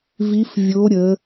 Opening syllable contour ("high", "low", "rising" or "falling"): rising